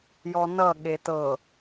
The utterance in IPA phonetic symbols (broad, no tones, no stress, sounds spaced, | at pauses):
j ɔ n ʌ ɠ e t ɤ